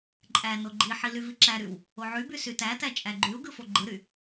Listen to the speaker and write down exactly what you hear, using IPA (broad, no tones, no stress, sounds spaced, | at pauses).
ǃʼ æ n o ɡ͡ǃ i ħ i l y v i ǁ æ ɾ y w | o ʕ y b y s y t æ t æ t͡ʃʼ æ ɡ͡ǃ y u̯ ɡ ɯ f o ɡ͡ǃ ɯ ɾ y